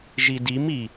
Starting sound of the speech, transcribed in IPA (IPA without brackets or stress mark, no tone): ʒ